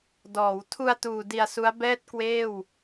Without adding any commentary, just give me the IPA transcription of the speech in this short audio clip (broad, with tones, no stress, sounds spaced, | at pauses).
d ɔː˩˦ w tʰ u˧ a̯ t uː˨˩ d i˧ a̯ s u˦˥ a̯ b ɛː˥˩ t̚ k w eː˥˩ w